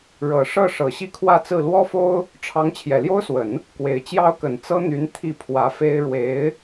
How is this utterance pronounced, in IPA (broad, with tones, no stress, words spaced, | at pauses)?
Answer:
ɻɤ˨˩ ʂɤ˥˩ ʂɤ˨˩ɕi˥˧kʰwä˥˧t͡sɹ̩˥˩ lwɔ˥fo˥ʊ̯ | ʈ͡ʂʰɑ˧˥ŋ t͡ɕʰjɛ˨˩ljo˥ʊ̯swə˨˩˦n | kwe˨˩ɪ̯ t͡ɕjɑ˥ʊ̯kə˨˩n t͡sɤ˥n̪y˧˥n t̪ʰi˥˩pʰwä˧˥fe˥ɪ̯ ɻwe˧˥ɪ̯